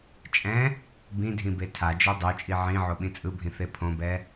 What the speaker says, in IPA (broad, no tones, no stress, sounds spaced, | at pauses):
t͡ʃʼ ɛ̃ | b ĩ dʱ ĩ b e tʰ a d͡ʒ o dˤ o t͡ʃʼ i ʕ ĩ ʕ o ɓ ĩ t͡sʼ ɯ bʱ ĩ θ e pʰ õ b ɛ